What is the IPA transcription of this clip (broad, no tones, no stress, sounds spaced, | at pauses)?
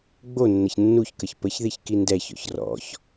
ɡ͡b o nː ə ç nː u ç k ə ç p ə ç ð i ç k i n d ɛ ç ɔ̰ ç r ɔ̰ ç